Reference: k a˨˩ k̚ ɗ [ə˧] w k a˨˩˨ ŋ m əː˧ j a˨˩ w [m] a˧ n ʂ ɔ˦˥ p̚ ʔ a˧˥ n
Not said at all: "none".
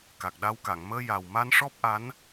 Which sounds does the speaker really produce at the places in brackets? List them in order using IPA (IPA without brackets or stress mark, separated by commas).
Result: a˧, m